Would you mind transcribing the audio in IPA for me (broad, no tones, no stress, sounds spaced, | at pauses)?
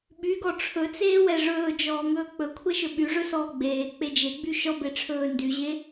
ɓ y ɡ ɔ ʈ͡ʂʰ ɵ t͡s eː w ɛ ʐ ɵː d͡ʒ ɔː ŋ ɵː k͡p ɵ kʷʰ ɛ ʃ ɵ ɓ y ʐ ɵ s ɔː ɡ͡b eː k͡p e d͡ʒ e ɡ͡b y ʃ ɔ b e ʈ͡ʂʰ ɵː n d y ʑ e